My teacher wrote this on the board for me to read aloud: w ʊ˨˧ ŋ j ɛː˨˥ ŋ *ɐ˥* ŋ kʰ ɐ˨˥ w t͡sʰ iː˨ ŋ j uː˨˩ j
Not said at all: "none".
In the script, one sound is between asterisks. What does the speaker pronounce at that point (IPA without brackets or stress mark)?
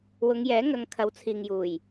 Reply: ɐ˨˧